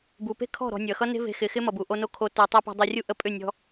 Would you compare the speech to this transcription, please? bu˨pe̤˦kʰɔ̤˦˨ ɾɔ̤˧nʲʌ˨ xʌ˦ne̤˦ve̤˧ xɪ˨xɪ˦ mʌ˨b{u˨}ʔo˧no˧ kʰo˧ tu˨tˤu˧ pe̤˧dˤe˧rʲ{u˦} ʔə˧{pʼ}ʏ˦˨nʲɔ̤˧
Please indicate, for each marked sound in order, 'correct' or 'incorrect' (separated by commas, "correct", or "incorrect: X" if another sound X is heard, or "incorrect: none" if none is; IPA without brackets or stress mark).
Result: correct, correct, correct